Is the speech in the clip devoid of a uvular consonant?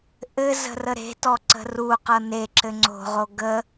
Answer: no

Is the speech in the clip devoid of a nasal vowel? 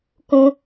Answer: no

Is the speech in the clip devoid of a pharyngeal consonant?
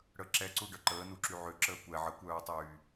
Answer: no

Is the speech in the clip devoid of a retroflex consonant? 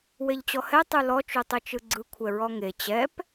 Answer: yes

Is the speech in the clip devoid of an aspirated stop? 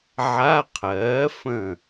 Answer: no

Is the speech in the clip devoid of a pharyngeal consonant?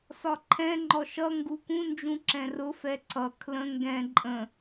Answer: yes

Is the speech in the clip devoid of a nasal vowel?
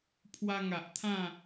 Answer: no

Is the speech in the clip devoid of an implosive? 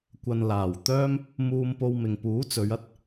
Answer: yes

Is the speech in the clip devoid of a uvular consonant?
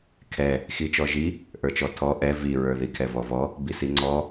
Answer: yes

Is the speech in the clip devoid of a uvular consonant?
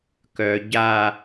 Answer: yes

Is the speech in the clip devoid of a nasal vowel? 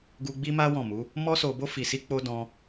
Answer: no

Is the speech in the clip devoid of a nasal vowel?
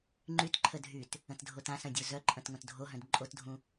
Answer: no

